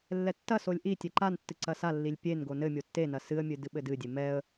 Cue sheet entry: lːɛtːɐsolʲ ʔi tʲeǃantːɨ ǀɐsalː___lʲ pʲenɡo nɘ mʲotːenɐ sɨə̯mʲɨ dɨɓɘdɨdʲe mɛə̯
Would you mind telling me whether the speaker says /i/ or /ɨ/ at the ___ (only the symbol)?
i